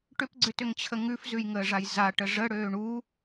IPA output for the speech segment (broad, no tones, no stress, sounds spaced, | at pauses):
ʈ ʏ p ɡ͡ǀ ʏ t ʏ ŋ t͡ɕʰ ə ŋ ʉ f z ʉ j ŋ əː ʐ a j z a ʈ ə ʐ ə ɽ øː ɳ u